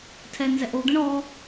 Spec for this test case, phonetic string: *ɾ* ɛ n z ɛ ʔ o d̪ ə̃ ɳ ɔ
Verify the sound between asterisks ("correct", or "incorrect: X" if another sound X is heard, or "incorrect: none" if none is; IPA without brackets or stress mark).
incorrect: tʰ